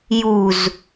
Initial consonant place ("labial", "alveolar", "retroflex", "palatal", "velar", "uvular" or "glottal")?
palatal